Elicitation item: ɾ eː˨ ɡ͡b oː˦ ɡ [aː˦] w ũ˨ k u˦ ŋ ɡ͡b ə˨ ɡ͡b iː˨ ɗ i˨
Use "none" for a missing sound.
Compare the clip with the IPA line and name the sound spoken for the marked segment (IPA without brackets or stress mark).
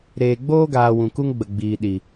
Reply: aː˨